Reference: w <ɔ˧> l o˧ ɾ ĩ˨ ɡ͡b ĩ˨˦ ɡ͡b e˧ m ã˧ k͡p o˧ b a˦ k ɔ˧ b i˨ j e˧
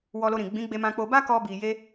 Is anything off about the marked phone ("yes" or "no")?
no